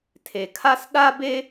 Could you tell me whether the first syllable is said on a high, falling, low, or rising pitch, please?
low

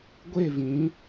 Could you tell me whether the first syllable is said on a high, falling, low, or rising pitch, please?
falling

